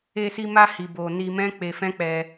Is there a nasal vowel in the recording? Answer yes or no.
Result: yes